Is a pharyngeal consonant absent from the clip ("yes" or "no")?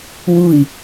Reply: yes